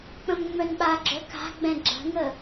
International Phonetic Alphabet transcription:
k͡p ə̃ m ŋ͡m œ n ɓ a ɡ͡ǁ œ k a̤ ɡ͡b ɛ̃ ɡ͡ǁ ə̤ ŋ ə

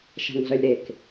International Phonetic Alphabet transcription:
ʃ a̤ ŋ ɮ œ lʲ ɾ e k

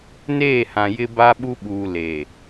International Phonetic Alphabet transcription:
n eː˦˨ h ã˨ j ɪ˦ b a˦ ɓ u˦ ɓ uː˨ l e˨

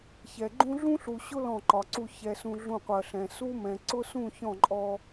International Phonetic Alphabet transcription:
ç ɛ˨ ɡ͡ǃ ũ˦ ɮ ũ˦ ɬ u˨ ɕ ʊ˦ l ɔ̃˦˨ ǃ ɒ˨ ǀ u˦˨ ç ɛ˨ s ũ˨ ɮ ũ˦˨ qʷ ɜ˨ ɬ ɛ̃˨ s u˦ m ɛ̃˨ ǀ ʊ˦ s ũ˦˨ ç ɔ̃˦˨ ǃʼ ɔ˦

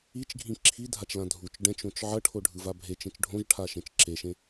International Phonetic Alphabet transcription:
i t͡ʃ ɡʱ ĩ ǁʰ i dʱ a t͡ʃ l ã dʱ u t͡ʃ ɖ ɛ̃ t͡ʃ õ t͡ʃ ʕ ʌ ʈʰ o ɖʱ ɯ v a bʱ e t͡ʃ ẽ t͡ʃ ɖʱ õ ʒ ʈʰ a ʃ ẽ t͡ʃ ǁ e ʃ ẽ

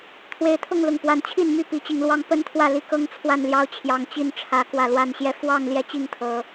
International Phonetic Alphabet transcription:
t̪ʰ w e˨˦ ɪ̯ t̪ʰ ʊ˥˨ ŋ l ʊ˨˩ ŋ p w a˨˦ n t͡ɕʰ i˥˨ n m y˥˨ p i˨˦ t͡ɕ i˨˦ ŋ l w ɑ˦ ŋ p ə˦ n t̪ʰ w ä˥˨ l i˥˨ k ɤ˦ ŋ t͡sʰ w a˥˨ n l j ɑ˥˨ ʊ̯ t͡ɕʰ j ɑ˨˩ ŋ t͡ɕ i˥˨ n ʈ͡ʂʰ ä˨˦ k w ä˨˩ l w a˥˨ n ɕ j ɛ˦ f w ɑ˥˨ ŋ l j ɛ˥˨ t͡ɕ i˥˨ ŋ t̪ʰ ɤ˨˦

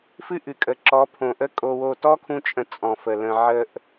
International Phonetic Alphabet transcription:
f ɨ˦ ʔ ɨ˨ kʼ ə˨ ǁ ɔ˨˦ pʰ õ˨ ʔ ə˦ kʼ o˧ w o˦˨ t ɔ˦ kʰ ũ˧ t͡ʃʼ ə̃˨˦ t͡sʼ ɔ̃˨ f ə˨ l ə̃˧ ʕ ə˧ ʔ

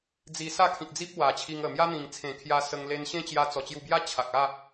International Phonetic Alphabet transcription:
d͡z i˧ s a˥˧ kʰ ĩ˨ k̚ d͡z i˦ p̚ w a˨˩ t͡ɕʰ i˧ ŋ ə˨˩ m j a˦ n̪ ĩ˨˩ ŋ t͡sʰ ẽ˨˩ kʰ j a˧ s ə˧ ŋ l e˧ n ɕ ẽ˦ t͡ɕ j a˧ t͡s ɔ˨˩ t͡ɕ j u˧ b j a˦ t͡ɕʰ a˨ k̚ a˥˧

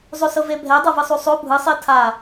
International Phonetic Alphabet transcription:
zˤ o s ɤ v e bʱ ɛ dˤ ɤ v ɯ sˤ u sˤ o bʱ ɯ sˤ i tʰ a

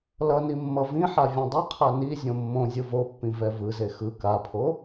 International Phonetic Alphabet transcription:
l ʌ n i mː ʌ v ĩ ħ a vʲ õ dˤ ɯ qʰ a n i zʲ õ mː õ zʲ ɯ v o pː ĩ v ɛ v ɯ z e x ɯ k a pʰ o

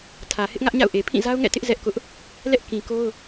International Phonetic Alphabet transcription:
tʰ ä˨ h ɪ˦ ʔ ŋ ä˦ ʔ ɲ a̰˦˨ ʊ̯ ʔ e˨ pʰ ĩ˦˨ z a˦ ʊ̯ ŋ ɛ̰˦˨ t ɪ˦ ʔ z ɛ˦ ʔ k ʊ˦ ʔ | l ɛ˦ ʔ k ĩ˨ k o˦ ʊ̯

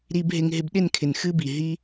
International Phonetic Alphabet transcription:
ɾ i˧ b ɦ ɪ˧ ŋ ɦ ɪ˧ b ɗ ɪ˦˨ n kʰ ɪ˨ n x ɨ˦ b i˨ ɦ i˦

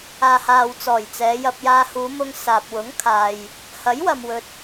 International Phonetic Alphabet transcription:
aː˨ h aː˨ w t͡s ɔː˨˩ j t͡s ɛː˨˧ j ɐ˧ p̚ j aː˧ h uː˨˧ m ʊ˧ ŋ s aː˨ p̚ w ʊ˨˥ ŋ kʰ aː˨ j | h ɐ˨˥ j w ɐ˨ m w ɵ˨ t̚

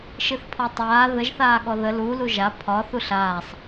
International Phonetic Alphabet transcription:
ʃ ɨ θ pʰ ɔ tˤ aː ð ə ʒ θ aː ɠ ɔ ð ə l u l u ʒ a pʰ ɒ θ u ɬ aː sˤ

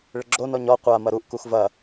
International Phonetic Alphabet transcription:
ɭ ɘ ɡ͡ǁ o n ɔ ɲ ɔ qʷ a m ɐ ɾ u ʔ k u x v ɐ

